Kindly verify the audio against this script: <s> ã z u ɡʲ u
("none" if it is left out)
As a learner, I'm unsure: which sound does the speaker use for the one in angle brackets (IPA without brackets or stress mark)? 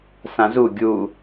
s